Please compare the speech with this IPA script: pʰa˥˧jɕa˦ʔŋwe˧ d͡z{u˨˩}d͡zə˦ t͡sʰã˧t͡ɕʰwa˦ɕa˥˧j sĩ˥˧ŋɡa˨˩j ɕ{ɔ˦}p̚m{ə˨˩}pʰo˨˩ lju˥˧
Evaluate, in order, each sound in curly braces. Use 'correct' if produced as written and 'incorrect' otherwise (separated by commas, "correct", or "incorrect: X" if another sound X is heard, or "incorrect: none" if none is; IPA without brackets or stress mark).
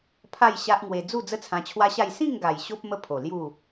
incorrect: u˥˧, incorrect: o˦, incorrect: ə˦